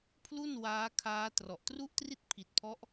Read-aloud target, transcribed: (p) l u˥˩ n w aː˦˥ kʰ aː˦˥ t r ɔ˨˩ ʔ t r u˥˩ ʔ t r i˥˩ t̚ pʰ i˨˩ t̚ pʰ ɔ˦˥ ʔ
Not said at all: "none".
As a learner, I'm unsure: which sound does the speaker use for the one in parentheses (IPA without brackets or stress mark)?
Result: pʰ